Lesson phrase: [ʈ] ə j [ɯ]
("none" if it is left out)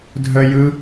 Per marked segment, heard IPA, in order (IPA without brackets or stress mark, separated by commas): dʱ, ɯ